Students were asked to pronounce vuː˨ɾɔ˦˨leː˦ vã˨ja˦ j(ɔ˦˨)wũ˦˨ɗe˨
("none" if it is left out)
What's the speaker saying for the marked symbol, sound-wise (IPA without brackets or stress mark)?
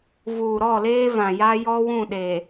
ɔ˦